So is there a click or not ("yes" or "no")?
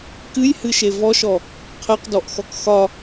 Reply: no